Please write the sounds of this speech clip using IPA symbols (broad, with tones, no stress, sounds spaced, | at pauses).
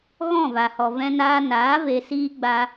ɣ ɔ̃˦˨ v a˨ h ɔ˨ v ɛ̃˧ n aː˧ n aː˨˦ v e˧ s iː˦ ɡ͡b a˦